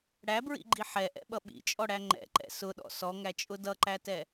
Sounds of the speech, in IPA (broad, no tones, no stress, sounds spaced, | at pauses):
ɽ æ b ɹ ḭ ɡ͡ǃ i ħ ɛ ʔ ɛ̰ ɓ ʌ ɓ ḭ t͡ʃʼ ɔ ɽ æ ŋ͡ǃ ɛ̰ ǃ ɛ̰ s ʊ ɗ ɔ̰ s ɔ ŋ æ t͡ʃʼ ʊ d ʌ ǃ æ t ɛ